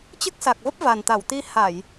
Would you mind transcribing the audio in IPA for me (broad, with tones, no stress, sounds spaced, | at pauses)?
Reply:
t͡ɕ ɨ˦˥ k̚ s a˨˩ k̚ v ə˦˥ p̚ v a˨˩ n t̪ a˧˩ w t̪ i˧ h a˧˩˨ j